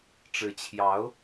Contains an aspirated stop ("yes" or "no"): yes